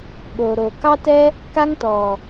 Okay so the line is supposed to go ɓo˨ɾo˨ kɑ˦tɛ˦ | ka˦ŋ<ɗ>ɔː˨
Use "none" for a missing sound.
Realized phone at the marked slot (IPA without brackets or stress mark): t